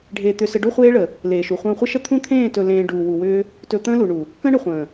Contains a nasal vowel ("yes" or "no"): yes